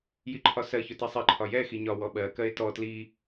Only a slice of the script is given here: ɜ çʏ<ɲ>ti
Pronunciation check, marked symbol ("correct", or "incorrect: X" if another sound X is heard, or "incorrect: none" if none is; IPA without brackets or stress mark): incorrect: none